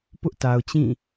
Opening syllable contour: high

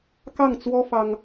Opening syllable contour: falling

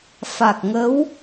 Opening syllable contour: low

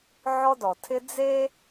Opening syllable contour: high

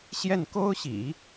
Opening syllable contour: falling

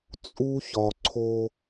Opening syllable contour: high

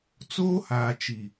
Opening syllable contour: high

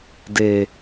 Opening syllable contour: low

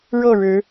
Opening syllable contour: falling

